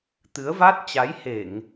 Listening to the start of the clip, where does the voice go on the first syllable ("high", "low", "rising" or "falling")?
rising